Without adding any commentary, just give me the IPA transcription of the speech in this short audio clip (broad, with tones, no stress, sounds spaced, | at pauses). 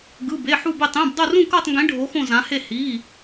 ɡ ɯ˧˥˧ b e˧˥˧ ħ u˥˧ b e˥˧ tˤ ẽ˧˥˧ b dˤ o˥˧ r ũ˥˧ k ɤ˥˧ tˤ ŋ ɡ ẽ˧˥ ɖʱ o˧˥ x õ˥˧ z ã˧˥ h e˥˧ h i˧˥˧